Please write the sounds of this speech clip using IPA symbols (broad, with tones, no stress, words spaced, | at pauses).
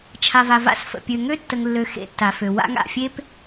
t͡ʃʰa˨va˨va̰˦s fə̰˨ pʲø˨ŋø˦tːə˨ŋ lːø˦ xḛ˦tːa˨fø˨ wa̰˦ŋa̰˨fʲe˦p